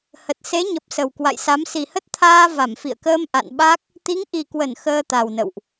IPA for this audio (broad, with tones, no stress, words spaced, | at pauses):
hə˨˩t̚ se˨˦ɲə˨˩p̚ sə˨˩wkwa̰˧˨jsa˨˦m si˨˩hə˦˥t̚t̪ʰaː˧ va˧˩mfḭ˧˨ə̯kəː˧m ʔa̰˧˨nɓa˦˥k̚ | t̪i˨˦ŋʔi˨˩kwə˧˩n xəː˧t̪a˨˩wnə̰˧˨wʔ